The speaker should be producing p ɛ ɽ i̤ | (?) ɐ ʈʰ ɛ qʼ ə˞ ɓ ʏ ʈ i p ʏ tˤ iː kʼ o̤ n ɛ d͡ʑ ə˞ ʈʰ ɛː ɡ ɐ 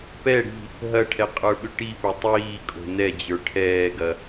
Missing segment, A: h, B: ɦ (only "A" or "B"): B